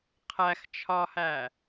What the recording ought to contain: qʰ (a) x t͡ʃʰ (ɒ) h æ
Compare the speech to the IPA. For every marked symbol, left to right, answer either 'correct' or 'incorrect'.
incorrect, correct

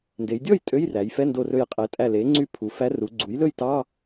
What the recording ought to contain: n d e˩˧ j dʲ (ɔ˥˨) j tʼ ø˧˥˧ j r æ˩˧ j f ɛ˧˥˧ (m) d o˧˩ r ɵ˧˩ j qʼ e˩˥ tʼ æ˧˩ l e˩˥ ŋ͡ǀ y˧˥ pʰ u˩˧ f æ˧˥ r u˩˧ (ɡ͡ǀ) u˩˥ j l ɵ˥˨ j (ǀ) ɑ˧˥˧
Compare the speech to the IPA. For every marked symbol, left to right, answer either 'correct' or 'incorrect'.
correct, incorrect, correct, incorrect

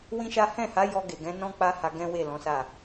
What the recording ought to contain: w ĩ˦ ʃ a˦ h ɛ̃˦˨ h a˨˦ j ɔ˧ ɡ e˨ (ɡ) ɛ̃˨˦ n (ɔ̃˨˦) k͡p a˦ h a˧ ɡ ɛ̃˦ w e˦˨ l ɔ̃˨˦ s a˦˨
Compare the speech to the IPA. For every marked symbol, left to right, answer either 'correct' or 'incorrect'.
correct, incorrect

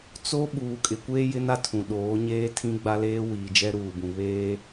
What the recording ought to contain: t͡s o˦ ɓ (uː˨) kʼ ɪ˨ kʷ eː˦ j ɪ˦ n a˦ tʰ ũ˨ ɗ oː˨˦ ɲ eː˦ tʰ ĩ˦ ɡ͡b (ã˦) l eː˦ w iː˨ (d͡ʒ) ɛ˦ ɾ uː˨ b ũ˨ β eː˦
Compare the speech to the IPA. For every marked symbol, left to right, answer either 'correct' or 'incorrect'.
correct, incorrect, correct

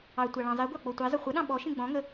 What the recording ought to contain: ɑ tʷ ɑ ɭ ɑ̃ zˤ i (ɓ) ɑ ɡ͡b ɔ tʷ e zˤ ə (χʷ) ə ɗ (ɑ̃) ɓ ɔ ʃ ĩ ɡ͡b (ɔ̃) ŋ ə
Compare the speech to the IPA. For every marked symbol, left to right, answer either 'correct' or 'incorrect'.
incorrect, correct, correct, correct

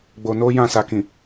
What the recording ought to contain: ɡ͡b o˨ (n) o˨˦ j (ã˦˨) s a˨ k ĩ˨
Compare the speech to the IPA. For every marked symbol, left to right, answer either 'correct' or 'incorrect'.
correct, correct

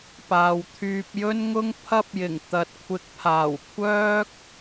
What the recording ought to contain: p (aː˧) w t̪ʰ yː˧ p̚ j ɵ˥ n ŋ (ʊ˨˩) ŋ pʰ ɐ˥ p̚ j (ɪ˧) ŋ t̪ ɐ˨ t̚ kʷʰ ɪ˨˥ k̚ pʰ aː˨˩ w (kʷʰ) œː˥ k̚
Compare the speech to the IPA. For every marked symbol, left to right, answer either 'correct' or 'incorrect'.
incorrect, incorrect, incorrect, correct

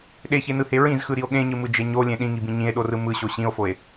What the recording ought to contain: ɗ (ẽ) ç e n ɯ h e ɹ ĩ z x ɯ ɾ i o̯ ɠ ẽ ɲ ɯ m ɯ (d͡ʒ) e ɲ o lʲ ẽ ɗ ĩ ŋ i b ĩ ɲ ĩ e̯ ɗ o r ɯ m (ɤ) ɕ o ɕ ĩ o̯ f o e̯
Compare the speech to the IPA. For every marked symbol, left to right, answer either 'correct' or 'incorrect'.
incorrect, correct, incorrect

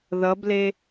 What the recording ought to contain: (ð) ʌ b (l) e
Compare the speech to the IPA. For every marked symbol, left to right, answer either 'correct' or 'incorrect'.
correct, correct

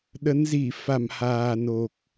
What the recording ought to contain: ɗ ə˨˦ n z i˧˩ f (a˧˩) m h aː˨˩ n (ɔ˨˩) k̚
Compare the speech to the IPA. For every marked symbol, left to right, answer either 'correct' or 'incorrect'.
correct, incorrect

